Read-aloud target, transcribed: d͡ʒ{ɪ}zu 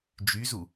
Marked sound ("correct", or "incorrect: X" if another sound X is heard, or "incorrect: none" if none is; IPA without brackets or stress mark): incorrect: y